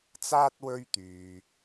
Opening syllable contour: high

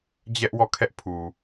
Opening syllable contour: high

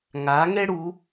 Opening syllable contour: rising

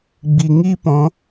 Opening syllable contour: low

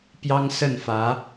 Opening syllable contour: high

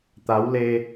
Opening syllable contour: rising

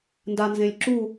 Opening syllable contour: low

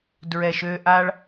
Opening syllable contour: low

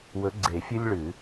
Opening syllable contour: rising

